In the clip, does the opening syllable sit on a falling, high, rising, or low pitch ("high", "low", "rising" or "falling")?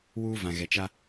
high